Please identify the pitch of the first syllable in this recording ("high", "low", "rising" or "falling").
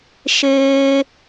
high